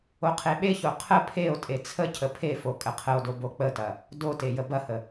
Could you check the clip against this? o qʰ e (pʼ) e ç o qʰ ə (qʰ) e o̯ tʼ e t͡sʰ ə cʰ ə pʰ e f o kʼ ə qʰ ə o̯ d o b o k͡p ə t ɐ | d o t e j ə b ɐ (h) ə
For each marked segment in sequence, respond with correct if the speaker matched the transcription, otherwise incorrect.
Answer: incorrect, incorrect, correct

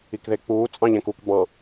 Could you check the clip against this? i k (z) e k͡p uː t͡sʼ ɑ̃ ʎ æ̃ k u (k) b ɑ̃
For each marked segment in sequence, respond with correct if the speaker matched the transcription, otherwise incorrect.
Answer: incorrect, correct

